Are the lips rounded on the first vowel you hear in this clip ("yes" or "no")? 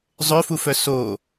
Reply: yes